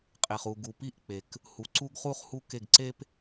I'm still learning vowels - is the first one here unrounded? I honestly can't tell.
yes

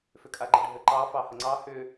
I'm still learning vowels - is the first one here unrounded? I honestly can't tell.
no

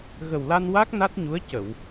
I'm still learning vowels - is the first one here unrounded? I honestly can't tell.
yes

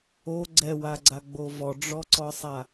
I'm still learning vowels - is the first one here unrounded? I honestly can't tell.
no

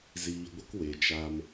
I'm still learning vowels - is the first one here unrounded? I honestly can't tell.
yes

